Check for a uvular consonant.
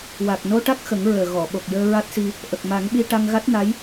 absent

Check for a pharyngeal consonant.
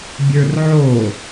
present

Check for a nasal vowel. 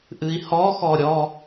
absent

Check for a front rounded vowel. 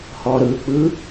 absent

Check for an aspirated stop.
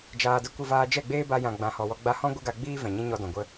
absent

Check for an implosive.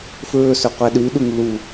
present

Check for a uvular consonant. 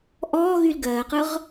present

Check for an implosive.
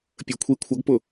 absent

